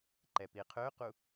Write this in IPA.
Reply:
ǃɛpiqʰøqu

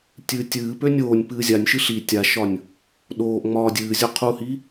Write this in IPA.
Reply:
tʲɨːtʲɨːpø nʲoːnʲ pɨːzʲanʲʃɨ ɬi tʲaʃɒnʲ | ɗoːʔ ŋ͡mɒːdʲɨːzʲo qʰuhi

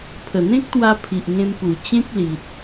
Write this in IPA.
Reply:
pʰə˨˩n̪ẽ˦k̚t̪wa˧ pʰi˨ʔŋẽ˧m pu˨˩t͡ɕẽ˦k̚li˨t̚

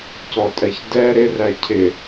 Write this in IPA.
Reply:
cɔtʼɛçdɛ ɾɪræ cʰɪ

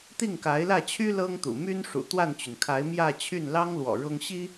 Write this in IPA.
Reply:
t̪i˥˩ŋka˧˥ɪ̯lä˥˩t͡ɕʰy˥ lɤ˥ŋt̪ṵ˨˩ my˥nʂṵ˨˩ t̪wa˥˩nt͡ɕy˩nkʰa˧˥ɪ̯ mjä˥˧ t͡ɕʰy˥˩nlɑ˥ŋlwɔ̰˨˩ ɻʊ˥ŋ ɕi˥

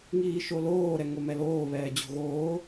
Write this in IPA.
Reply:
ŋiːʃoloː ɾɛŋomɛloː βɛːd͡ʑo̤ɣoː

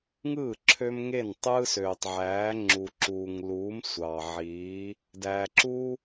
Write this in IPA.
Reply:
ŋɯː˥˩ ǁʰø˦mŋe˥˩n tˤɯː˦søː˨tˤʕæː˨˥ ŋ͡ǁu˨ǁuː˨ŋluː˨˥m sʷɑ˨ʕiː˨˥ | dæː˨ǁuː˦

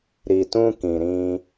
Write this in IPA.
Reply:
ɾi˨tũ˧ kĩ˨ɾĩ˧

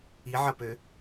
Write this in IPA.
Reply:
iʕɐpø

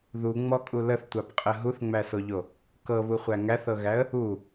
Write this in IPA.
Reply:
ðuŋ͡mɔkʼu ləθtʷapqʼə ɦuθŋ͡mæsoʎo | kɤβuχʷæ ŋæθɤɣæə̯ | u

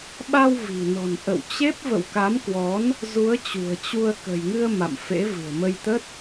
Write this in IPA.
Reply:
ɓa˧w vi̤˨˩nɔ̤˨˩n ʔə̰˧˨wt͡ɕe˦˥p̚ və̰˧˨wka˨˦mkwɔ˨˦n | zu˨˦ə̯t͡ɕṳ˨˩ə̯ t͡ɕu˧ə̯ kə̤˨˩jŋɨ˧ə̯ ma̰˧˨mfḛ˧˥ vɨ̤˨˩ə̯mə˧jt̪ə˦˥t̚

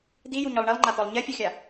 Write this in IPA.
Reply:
d̪ijuɲɔlˠ ɳilˠŋ͡ǃat̪ɔlˠ ɲɛfʲɔxʲa

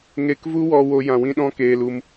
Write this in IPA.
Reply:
ŋe˧kvu˦wɔ˧ wo˦jã˧wĩ˦ɗɔ̃˦ keː˧l u˧m

